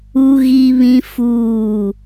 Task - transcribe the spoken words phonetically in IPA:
u˦ ɣ i˦ β ĩ˦ f uː˦˨

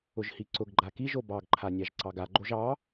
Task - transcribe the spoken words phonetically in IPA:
ʊ ʒ h i ǀ ʊ ɡ ɡ͡ǃ a k i ʒ o b ɑ ɡ ǃʰ a nʲ ɑ ʒ ǀ ɑ ɡ a ɡ͡ǃ o ʒ ɑ

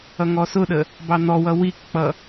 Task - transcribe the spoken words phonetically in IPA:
ʌ ŋ ɔ s ʊ ɗ ə | b ɑ n̪ ɔ w ʌ w i k k͡p ʌ

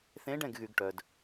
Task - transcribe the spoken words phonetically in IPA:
θ ẽ˧˥ ɖ ɛ̃˦˨ ɡ ɣ y˨ ɡ ʈ œ˨ d

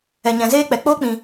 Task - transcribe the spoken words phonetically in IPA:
ɛ˨ ɲ ɛ̃˨ z eː˦ k͡p ɛ˨ k͡p oː˦ k͡p ĩ˨

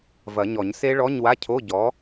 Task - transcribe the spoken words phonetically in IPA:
v ɐ˨˩˦ ɲ ɔ˨˩˦ ɲ s e˦˥ ɭ ɔ˧˥˧ ɲ w a˧˥˧ cʰ o˧˥˧ ɟ ɔ˨˥

